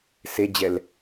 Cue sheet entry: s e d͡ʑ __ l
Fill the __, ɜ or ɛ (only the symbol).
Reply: ɛ